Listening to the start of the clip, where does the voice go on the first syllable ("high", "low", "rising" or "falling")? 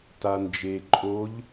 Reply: low